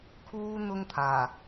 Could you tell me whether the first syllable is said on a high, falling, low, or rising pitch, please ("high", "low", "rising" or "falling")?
high